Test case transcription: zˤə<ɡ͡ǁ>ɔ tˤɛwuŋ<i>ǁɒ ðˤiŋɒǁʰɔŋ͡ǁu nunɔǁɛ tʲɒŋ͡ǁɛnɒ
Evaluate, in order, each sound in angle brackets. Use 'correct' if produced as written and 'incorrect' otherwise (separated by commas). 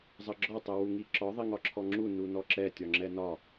correct, correct